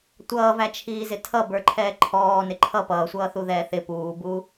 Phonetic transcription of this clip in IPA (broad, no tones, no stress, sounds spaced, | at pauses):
tʷ ʌː v æ t͡ʃʰ iː z ɪ tʰ ʌ b ə˞ ǃʰ ɛː ǃʰ ɔː n ɪ ǃʰ ʌ p ʌː sʷ ʌː θ u ð ɛː θ ɪ p uː b u